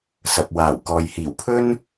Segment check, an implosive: absent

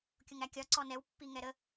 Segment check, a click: present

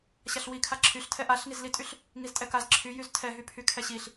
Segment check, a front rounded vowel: present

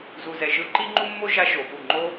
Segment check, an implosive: absent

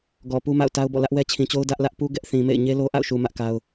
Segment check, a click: absent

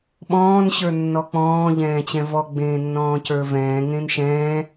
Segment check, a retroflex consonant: absent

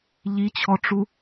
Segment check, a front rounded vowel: absent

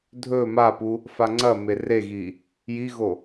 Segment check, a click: present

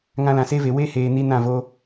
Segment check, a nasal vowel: present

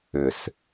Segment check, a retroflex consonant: absent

